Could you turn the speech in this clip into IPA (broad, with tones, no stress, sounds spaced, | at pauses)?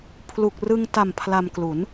pʰ l u˨˩ k̚ r ɯ˧ ŋ t a˨˩ m pʰ l a˧ m k l u˩˦ n